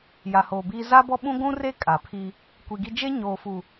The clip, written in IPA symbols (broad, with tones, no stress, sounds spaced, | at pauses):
j a˨ h oː˨ b iː˦ z a˦ b ɔ˦ ɓ ũ˦ ɡʷ ũ˦ r e˦ kʼ a˨ pʰ i˦ | kʷ i˨ ɡ i˦ d͡ʒ e˦ ɲ oː˨ f u˨